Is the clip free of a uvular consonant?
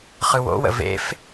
no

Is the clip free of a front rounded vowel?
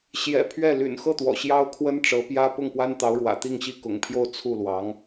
no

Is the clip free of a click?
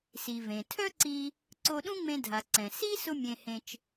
no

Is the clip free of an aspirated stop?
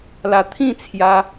no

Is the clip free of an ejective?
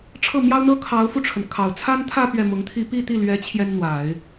yes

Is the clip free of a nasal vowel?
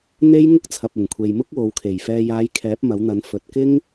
yes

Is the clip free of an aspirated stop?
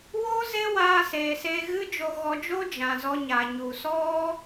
yes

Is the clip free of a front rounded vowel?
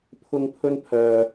no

